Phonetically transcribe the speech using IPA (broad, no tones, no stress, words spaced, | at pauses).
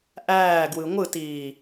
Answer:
ʔæːɡwɯ ŋʷɯtiː